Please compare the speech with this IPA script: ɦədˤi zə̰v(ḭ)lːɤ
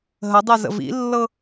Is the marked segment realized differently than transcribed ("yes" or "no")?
no